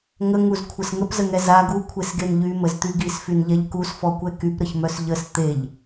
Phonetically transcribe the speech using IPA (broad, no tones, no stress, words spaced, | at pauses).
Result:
ŋəŋuzkʷʰəs ŋəpzəŋɛ za ɡukʷʰesɡen ʎyməzt̪y ɡisfynʎɛʎ kusfɔkʷɛ kypɾəçmœs ʎəs t̪eʎ